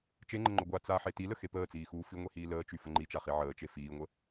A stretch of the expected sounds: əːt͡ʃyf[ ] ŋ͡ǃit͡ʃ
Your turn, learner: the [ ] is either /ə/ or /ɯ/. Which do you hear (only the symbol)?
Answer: ə